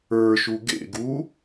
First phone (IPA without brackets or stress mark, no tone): ə˞